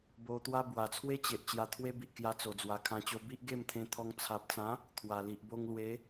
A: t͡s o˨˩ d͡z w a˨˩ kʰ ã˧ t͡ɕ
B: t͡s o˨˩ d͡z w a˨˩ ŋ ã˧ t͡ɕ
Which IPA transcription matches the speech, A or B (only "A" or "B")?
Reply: A